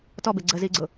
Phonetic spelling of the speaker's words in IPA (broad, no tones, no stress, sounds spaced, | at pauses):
t ɔ b e ɡ͡ǀ ə z i ɡ͡ǀ ʊ